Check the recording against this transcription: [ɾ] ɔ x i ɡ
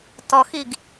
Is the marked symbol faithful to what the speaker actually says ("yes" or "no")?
no